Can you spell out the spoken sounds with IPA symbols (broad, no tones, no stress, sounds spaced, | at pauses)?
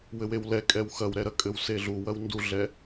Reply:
w ɘ w e w l ɛ kʼ ɛ w x ɐ w ɾ ɛ ɾ ɐ kʼ ɘ w s e ɮ u w ɐ w n d u ɮ ɛ